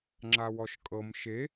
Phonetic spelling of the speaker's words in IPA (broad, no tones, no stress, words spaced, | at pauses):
ŋ͡ǁawɔʃkʼɤm ʃe